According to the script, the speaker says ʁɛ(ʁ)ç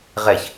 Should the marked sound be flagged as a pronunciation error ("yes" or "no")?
yes